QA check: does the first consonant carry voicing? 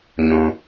yes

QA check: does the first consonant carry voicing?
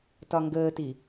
no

